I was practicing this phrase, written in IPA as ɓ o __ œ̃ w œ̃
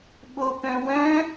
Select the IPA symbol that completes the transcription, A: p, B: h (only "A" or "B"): A